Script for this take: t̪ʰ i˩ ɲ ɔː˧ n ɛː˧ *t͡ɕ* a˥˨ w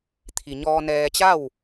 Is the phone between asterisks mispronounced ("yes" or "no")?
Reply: no